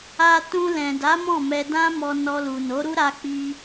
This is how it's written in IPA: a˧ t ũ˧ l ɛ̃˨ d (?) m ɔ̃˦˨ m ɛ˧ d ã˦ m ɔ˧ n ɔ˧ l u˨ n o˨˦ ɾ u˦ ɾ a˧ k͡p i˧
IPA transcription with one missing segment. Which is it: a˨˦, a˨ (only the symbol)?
a˨˦